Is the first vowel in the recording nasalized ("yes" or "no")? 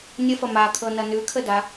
no